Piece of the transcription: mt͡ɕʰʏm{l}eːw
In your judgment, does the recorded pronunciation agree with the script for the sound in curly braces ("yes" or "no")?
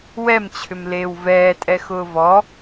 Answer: yes